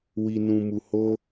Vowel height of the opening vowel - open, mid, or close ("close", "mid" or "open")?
close